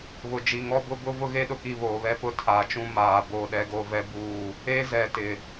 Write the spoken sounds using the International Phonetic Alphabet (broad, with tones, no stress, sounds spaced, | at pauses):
β ʊ˨ d͡ʒ i˨ ŋ ɔ˦ b ʊ˦ b ʊ˦ v ʊ˦ ɣ e˦ ɗ ʊ˨ k i˦˨ β oː˨ β ɛ˦ p ʊ˦ tʰ aː˨ t͡ʃ ũ˦ m aː˨ b o˦˨ ɗ ɛ˦ ɡ o˦ v ɛ˦ b uː˦˨ | e˦ z ɛ˨ t ɪ˨